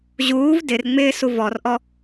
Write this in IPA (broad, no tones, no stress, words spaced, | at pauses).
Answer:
ʑuːv dɪrŋ͡mɪːsu vɔrʔɔ